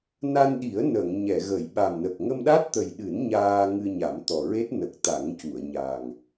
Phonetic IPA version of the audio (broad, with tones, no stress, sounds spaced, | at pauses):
n a˧ n ɗ i˨˩˦ ə̯ n ə˨˩˨ ŋ ɲ ɛ˨˩˨ ɣ ə˨˩˨ j ɓ a˨˩ m n ə˨˩ k̚ ŋ ə˧ m ɗ a˦˥ t̚ t̪ ə˨˩ j ɗ ɨ˨˩˦ n ɲ aː˧ ŋ ɨ˧ ɲ a˨˩˦ m t̪ ɔ˨˩ ɹ e˦˥ t̚ n ə˨˩ k̚ t̪ a˨˩˦ ŋ c u˨˩˨ ə̯ ɲ a˨˩ ŋ